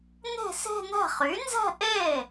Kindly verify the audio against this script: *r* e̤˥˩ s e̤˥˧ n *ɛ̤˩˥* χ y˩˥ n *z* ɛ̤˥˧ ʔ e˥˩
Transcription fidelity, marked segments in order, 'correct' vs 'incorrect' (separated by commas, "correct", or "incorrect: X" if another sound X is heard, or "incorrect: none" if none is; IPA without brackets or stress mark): incorrect: n, incorrect: ɛ̤˥˩, correct